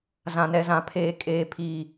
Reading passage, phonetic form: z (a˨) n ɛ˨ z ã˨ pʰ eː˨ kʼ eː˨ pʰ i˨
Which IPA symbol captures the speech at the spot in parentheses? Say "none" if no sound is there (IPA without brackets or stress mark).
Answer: ã˨